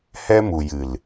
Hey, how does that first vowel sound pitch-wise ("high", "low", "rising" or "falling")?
high